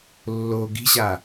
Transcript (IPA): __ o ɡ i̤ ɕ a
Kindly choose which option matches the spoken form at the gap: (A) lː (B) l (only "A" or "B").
A